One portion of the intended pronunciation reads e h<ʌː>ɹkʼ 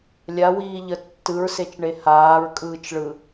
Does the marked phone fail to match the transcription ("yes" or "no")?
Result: yes